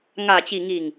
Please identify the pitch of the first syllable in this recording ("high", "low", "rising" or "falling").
low